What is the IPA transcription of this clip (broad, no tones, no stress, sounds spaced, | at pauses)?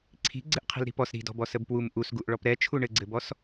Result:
ǀʰ i̤ ɡ͡ǀ ɘ ʔ qʰ i̤ l ɾ i̤ p ɔ s ɾ i̤ d ɔ̤ b ɔ s ə b p w u m ʔ u s ɡ u ʔ ɭ ɔ p ɾ ɛ t͡ʃʰ u ɳ ɘ ɡ͡ǀ ɘ b ɔ s